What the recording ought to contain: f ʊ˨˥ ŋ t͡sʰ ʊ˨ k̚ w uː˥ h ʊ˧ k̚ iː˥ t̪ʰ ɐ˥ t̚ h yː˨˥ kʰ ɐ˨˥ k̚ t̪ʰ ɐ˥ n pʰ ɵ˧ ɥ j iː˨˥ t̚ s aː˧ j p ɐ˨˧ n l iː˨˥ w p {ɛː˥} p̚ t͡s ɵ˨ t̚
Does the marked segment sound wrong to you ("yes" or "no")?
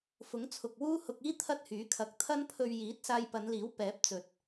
yes